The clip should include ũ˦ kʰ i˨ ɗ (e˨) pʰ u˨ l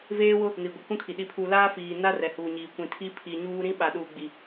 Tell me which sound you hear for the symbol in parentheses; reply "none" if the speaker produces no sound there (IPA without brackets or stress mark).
i˨